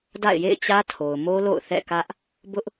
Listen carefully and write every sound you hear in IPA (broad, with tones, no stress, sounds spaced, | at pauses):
d a̰˦˨ ɪ̯ j ḛ˦˨ ɪ̯ t͡ɕ ä˦ tʰ o˨ ʊ̯ m o˦ l o̰˦˨ ʊ̯ θ ɛ̰˦˨ k ä˦ ʔ | b ʊ˦ ʔ